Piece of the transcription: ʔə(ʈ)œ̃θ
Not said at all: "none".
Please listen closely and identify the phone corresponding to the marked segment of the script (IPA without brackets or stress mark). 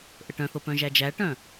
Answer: ʈ